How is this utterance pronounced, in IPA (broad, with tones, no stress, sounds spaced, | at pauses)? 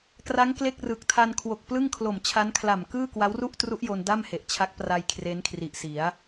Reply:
k r a˦˥ ŋ k l e˥˩ k̚ r ɯ˨˩ k̚ tʰ a˧ n kʰ w o˨˩ k̚ p l ɯ˥˩ ŋ kʰ l o˨˩ m t͡ɕʰ a˦˥ n kʰ l a˨˩ m k ɯː˥˩ k w a˦˥ w r u˥˩ ʔ t r u˦˥ ʔ j o˧ n d a˥˩ m h e˨˩ ʔ t͡ɕʰ a˦˥ k̚ p r a˧ j kʰ r e˦˥ n kʰ r i˨˩ ʔ s i˩˦ a̯